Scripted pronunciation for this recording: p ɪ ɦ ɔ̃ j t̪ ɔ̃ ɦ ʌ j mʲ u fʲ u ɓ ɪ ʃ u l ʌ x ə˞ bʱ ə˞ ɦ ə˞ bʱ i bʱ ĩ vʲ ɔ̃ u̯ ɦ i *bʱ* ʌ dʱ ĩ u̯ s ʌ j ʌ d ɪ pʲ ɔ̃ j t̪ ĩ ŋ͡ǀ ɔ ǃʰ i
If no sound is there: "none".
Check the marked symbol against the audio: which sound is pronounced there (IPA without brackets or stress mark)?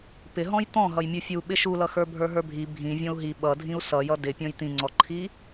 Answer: ɓ